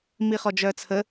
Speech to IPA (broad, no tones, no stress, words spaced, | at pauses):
miχɔd͡ʒœːt͡sʰə